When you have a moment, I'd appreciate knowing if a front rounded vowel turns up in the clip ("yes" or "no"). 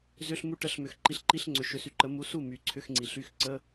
yes